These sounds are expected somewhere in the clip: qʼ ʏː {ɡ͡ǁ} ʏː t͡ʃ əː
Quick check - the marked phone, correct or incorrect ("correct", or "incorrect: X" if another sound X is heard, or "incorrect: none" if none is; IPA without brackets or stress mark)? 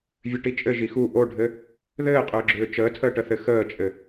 correct